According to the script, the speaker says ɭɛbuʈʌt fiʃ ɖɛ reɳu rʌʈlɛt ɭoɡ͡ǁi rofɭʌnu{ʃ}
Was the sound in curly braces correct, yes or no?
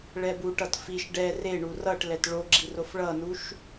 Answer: yes